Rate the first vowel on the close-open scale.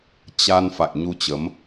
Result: open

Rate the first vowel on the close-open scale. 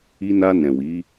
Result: close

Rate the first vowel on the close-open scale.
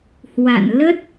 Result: open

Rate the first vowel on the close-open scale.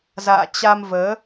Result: open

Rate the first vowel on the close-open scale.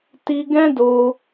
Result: close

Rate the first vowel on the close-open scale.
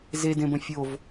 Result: mid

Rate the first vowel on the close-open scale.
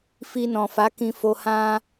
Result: close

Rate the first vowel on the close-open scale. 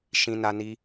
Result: close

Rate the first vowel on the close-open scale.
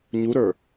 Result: close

